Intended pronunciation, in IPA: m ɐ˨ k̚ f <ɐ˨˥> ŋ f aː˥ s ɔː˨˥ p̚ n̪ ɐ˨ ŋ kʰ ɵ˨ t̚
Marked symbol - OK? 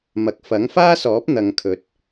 yes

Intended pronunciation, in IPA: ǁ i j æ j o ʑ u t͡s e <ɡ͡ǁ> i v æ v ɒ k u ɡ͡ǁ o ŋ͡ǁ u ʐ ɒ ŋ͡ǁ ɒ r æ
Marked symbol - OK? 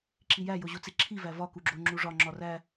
no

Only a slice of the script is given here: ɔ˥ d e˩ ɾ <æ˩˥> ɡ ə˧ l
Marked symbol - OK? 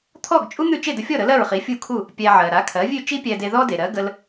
no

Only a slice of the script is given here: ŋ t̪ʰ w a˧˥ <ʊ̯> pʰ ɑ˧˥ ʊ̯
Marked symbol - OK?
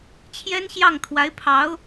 no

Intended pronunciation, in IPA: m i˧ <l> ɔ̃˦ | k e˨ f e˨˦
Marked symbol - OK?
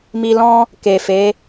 yes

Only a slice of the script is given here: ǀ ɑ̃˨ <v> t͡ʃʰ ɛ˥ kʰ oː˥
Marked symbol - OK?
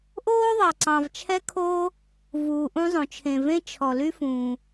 yes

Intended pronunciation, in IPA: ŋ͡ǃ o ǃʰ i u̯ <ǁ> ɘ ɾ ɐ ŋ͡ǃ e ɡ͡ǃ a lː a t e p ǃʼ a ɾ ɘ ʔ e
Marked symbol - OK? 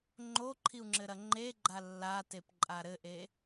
no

